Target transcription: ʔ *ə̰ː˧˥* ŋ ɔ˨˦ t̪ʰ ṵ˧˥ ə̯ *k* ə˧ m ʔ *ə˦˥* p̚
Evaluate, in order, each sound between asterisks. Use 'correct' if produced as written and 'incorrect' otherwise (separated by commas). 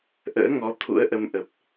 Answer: correct, incorrect, incorrect